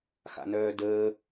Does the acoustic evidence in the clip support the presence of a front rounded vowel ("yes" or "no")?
yes